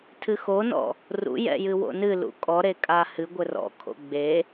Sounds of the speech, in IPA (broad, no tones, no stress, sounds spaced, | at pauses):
tʰ ɨ x o n ɔ̰ | r ṵ j ɛ̰ j ɨ w o̰ n ɨ l ṵ kʼ ɔ ɾ e kʼ a h ɨ ɡʷ ɘ r ɔ̰ kʰ o̰ ɡ͡b e